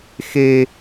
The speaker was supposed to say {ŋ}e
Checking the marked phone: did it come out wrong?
yes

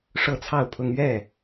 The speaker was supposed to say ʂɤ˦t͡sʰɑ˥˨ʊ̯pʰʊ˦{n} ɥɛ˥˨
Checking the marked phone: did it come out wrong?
yes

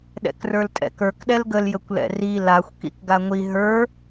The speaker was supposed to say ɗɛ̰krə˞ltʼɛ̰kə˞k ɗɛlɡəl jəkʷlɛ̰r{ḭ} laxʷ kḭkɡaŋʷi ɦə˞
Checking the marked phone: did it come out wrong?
yes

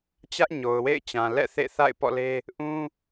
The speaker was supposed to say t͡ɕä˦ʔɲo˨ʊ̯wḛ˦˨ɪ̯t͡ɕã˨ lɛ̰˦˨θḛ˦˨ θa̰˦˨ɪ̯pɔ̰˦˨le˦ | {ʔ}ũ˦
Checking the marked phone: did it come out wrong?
no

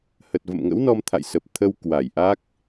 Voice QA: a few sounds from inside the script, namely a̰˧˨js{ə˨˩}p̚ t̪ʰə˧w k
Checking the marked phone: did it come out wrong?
no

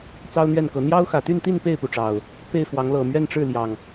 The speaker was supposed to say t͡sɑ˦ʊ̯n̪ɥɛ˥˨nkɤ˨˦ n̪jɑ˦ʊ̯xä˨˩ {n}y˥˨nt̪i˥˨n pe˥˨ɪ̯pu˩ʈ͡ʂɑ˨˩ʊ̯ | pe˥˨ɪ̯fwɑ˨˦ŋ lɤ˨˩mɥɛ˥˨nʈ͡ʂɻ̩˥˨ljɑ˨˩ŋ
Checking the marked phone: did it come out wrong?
yes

